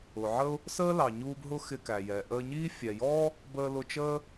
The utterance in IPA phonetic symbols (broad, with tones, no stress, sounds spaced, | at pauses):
ʊ˩ ʕ ə˥ ʊ̯ | s əː˥ l ɑ˩ ɲ uː˧ b ɦ ʊ˥ x ɪ˧ k æ˩ j ɛ˩ ʔ əː˧ ɲ iː˥ fʲ ɛ˩ j ɔː˥ | b əː˧ l ʊ˧ t͡ʃ əː˥